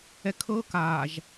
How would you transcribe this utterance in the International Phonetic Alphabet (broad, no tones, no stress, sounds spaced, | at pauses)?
ɛ kʰ ɤ k aː ʒ